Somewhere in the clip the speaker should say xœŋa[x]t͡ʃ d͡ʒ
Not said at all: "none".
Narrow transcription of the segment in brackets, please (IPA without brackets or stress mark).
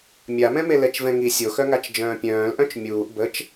none